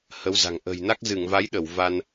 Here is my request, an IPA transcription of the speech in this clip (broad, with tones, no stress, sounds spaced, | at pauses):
h ə˨˦ w z a̤˨˩ ŋ ʔ ə̤˨˩ j n a˦˥ k̚ z ɨ˧˩ ŋ v a˨˦ j ɗ ə˧˩ w v a˧ n